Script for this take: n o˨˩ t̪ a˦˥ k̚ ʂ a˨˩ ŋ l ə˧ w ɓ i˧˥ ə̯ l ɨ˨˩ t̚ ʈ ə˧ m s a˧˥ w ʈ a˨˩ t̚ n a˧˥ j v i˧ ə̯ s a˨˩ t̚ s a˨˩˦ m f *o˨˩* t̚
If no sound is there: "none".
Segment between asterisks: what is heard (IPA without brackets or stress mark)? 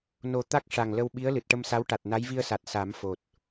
o˨˩